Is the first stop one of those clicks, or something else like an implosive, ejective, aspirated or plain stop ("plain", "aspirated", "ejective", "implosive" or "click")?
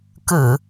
plain